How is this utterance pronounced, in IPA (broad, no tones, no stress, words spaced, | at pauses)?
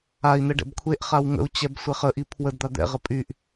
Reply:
ai̯n̪ɛ ɖɛ̰bkʷʰeʔχaw ŋə̰u̯t͡ɕɛb sʷɛχəʔi pʰwədd̪a d̪ɛ̰ʁə pʼyʔ